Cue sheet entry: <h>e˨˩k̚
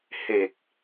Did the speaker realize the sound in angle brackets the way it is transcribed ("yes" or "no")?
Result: yes